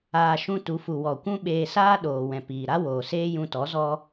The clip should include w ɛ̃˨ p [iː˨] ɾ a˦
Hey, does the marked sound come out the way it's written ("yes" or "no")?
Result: yes